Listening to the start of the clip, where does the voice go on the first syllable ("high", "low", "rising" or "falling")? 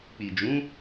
low